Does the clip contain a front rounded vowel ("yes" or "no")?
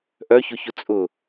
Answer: yes